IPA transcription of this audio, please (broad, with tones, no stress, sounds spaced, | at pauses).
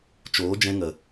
t͡ʃ oː˨˦ d͡ʒ ɛ̃˧ ŋ ə˨